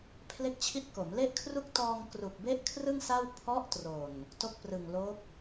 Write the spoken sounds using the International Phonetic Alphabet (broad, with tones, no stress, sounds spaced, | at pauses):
pʰ l e˥˩ k̚ t͡ɕʰ i˥˩ t̚ k o˩˦ m l e˥˩ ʔ kʰ r u˥˩ k̚ t ɔː˧ ŋ k r u˨˩ k̚ b e˥˩ ʔ kʰ r ɯ˥˩ ŋ s a˥˩ w pʰ ɔ˦˥ ʔ t r o˨˩ n | t o˦˥ k̚ p r ɯ˨˩ ŋ l o˦˥ k̚